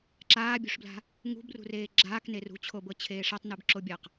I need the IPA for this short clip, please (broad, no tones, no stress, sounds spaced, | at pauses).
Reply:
ǁ aː bʲ ṳ ʂ b l a̤ | ŋ ṳ b r ṳ r eː ɡ͡ǁ aː k n e r ṳ t͡ɕʰ o b ɤ t͡ɕʰ eː ʂ a tˤ n ɯ b ǁ o bʲ a q